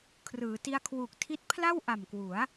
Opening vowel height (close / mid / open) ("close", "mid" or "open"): close